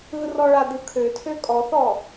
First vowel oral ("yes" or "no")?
yes